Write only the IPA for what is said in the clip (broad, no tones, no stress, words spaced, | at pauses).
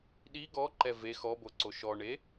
ɗi ɡɔǃɛ ve xɔboǀo ʃɔɳe